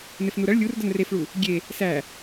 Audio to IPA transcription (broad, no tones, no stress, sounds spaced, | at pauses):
n̪ e f n u ɾ ɐ ɭ lʲ u r d ɐ n r e f ɭ u | ɡʲ e | s æ